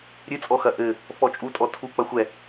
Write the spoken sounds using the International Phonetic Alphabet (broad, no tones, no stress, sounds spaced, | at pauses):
ɾʲ ɨ t͡sʼ ɔ x ɐ ʔ ɘ | f ɔ t͡ʃʼ u tʼ ɔ tʰ u k͡p ɐ xʷ ɛ